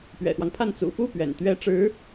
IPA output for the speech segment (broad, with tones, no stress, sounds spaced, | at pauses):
p ɥ ɛ̰˨˩ x w ɑ˦ ŋ pʰ a˥˩ n t͡s ṵ˨˩ f u˥˩ p ɥ ɛ̰˨˩ n t̪ ɥ ɛ˥ ʈ͡ʂ ɻ̩˧˥